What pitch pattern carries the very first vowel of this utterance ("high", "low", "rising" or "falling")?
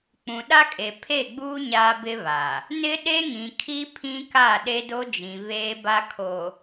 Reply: low